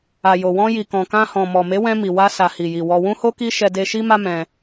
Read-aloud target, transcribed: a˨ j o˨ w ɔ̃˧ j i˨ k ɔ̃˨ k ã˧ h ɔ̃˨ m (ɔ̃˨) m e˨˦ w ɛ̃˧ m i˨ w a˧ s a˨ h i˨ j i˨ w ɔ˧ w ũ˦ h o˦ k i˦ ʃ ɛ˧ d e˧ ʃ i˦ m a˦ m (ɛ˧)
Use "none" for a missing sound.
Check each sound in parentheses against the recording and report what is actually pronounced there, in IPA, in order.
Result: ɔ˨, ɛ̃˧

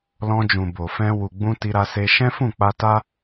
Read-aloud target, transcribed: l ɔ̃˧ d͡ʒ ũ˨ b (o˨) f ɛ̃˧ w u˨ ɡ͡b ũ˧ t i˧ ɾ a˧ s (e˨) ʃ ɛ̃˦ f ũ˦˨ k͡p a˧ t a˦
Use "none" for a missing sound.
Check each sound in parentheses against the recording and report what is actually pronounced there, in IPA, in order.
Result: o˨, e˧

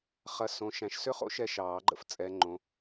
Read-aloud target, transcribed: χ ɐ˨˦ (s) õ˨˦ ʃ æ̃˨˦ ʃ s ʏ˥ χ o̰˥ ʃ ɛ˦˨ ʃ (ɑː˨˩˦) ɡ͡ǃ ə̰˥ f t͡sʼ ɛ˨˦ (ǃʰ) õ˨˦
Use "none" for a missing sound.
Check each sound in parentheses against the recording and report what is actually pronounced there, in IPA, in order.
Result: s, ɑː˨˩˦, ŋ͡ǃ

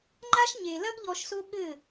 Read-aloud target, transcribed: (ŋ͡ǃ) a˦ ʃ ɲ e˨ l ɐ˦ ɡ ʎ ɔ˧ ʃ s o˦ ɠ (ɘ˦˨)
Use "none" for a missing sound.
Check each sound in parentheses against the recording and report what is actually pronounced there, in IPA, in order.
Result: ŋ͡ǃ, ɘ˦˨

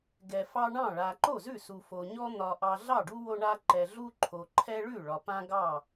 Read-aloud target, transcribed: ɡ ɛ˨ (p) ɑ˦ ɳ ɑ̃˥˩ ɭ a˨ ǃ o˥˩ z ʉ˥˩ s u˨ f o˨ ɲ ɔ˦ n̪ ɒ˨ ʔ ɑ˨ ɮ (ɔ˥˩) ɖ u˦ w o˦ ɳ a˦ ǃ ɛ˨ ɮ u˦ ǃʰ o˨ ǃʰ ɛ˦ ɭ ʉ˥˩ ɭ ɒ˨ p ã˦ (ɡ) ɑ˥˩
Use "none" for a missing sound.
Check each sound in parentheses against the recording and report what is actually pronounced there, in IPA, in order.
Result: f, ɑ˥˩, ɡ

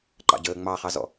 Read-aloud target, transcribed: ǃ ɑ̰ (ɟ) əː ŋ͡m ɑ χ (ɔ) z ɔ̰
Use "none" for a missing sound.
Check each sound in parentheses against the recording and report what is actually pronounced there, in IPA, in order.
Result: ɟ, ɑ

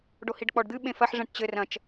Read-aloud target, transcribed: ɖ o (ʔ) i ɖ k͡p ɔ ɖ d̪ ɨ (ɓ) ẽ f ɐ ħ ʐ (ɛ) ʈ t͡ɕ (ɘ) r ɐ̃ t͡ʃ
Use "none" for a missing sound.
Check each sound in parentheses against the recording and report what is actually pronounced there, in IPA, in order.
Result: h, ɓ, ɛ̃, ɘ

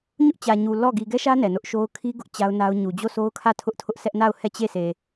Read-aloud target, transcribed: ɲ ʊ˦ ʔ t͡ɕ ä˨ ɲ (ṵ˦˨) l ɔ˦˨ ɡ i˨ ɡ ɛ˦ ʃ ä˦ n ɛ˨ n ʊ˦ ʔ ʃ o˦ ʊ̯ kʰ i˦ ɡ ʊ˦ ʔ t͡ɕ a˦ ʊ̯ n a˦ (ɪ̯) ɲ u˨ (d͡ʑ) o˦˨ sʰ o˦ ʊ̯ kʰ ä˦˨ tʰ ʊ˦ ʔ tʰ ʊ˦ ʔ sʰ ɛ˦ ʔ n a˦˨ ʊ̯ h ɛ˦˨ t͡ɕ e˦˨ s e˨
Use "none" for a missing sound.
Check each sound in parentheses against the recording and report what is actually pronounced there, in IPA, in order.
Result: u˨, ʊ̯, d͡ʑ

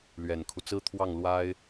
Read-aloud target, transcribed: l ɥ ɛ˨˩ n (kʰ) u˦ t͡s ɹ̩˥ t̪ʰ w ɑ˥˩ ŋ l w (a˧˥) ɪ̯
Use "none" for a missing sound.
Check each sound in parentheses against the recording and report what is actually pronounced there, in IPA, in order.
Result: kʰ, a˥

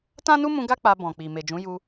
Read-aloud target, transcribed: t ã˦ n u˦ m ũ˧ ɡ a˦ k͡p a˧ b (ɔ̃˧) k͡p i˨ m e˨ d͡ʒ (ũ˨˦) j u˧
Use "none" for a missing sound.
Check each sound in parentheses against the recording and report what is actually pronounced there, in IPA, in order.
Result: ɔ̃˨, ũ˨˦

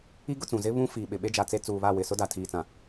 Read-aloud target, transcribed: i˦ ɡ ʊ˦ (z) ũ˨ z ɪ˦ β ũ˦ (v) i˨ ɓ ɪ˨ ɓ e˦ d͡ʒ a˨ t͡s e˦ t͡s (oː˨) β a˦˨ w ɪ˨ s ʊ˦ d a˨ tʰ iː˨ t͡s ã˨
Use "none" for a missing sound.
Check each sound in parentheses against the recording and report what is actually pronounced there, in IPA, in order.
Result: t͡s, f, uː˨

